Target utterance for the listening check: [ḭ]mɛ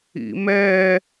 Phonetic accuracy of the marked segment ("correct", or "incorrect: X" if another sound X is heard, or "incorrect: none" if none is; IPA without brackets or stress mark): correct